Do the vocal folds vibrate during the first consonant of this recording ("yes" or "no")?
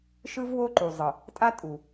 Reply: no